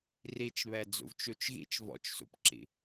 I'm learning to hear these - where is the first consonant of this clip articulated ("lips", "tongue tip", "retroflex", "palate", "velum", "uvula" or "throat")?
tongue tip